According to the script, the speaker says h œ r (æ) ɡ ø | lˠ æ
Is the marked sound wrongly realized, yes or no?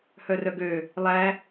yes